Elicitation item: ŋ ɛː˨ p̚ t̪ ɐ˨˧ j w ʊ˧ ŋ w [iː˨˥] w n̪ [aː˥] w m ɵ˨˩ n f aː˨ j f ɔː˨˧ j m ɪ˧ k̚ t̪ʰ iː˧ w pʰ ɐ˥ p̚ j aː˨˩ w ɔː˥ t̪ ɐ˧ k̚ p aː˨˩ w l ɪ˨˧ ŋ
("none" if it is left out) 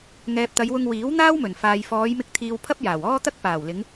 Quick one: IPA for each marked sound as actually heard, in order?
iː˨˥, aː˥

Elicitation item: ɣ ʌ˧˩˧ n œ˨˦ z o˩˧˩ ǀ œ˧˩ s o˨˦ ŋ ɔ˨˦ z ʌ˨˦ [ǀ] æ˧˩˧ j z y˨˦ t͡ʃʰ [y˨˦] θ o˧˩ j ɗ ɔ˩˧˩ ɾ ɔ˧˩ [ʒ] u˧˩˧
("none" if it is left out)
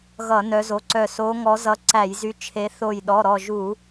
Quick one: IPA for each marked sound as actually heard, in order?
ǀ, e˨˦, ʒ

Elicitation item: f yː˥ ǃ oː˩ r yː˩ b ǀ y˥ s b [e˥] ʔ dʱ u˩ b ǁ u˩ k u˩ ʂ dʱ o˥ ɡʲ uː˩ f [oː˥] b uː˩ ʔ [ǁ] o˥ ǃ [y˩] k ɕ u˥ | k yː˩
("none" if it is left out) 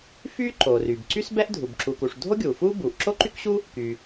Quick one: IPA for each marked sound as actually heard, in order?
ɛ˥, uː˥, ǁ, y˥

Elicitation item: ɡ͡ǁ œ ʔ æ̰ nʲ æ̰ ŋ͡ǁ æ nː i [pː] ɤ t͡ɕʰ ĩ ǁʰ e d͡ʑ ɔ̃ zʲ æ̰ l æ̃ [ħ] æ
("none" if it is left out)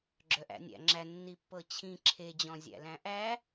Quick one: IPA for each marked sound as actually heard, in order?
pː, ʔ

